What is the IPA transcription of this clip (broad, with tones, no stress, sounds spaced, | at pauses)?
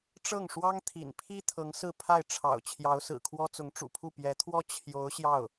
ʈ͡ʂ ɤ˥˩ ŋ ʂ w ɑ˥ ŋ t̪ʰ ḭ˨˩ n pʰ i˥ t̪ʰ ɤ˧˥ ŋ s ɹ̩˥˧ pʰ a˥˩ ɪ̯ ʈ͡ʂʰ ɑ̰˨˩ ʊ̯ t͡ɕʰ j ɑ˧˥ ʊ̯ s ɹ̩˨˩ kʰ w ɔ˥ t͡s ʊ˧˥ ŋ ʈ͡ʂ ṵ˨˩ pʰ u˥˩ p j ɛ˧˥ t̪ʰ w ɔ˥ t͡ɕʰ j o˧˥ ʊ̯ ɕ j ɑ˥˩ ʊ̯